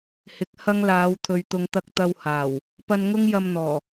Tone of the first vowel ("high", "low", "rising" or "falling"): rising